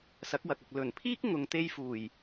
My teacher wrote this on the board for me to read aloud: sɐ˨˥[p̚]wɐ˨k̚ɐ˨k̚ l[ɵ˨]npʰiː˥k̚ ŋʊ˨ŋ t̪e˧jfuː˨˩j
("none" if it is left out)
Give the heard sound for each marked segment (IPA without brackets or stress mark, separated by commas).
k̚, ɵ˨˩